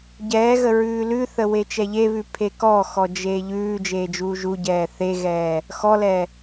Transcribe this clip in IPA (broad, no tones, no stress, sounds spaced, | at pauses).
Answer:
ɟ ɛː ɣ ə ɹ ʉː l ʉ θ ə w e t͡ʃ ɛ ʎ e β ʉ pʰ e k ɔ x ɔ d͡ʒ eː ʎ ʉː d͡ʒ eː d͡ʒ uː ʒ u ɟ ɛː θ e ɣ ɛː | x ɔ l ɛ